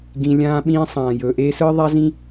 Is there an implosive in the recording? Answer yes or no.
yes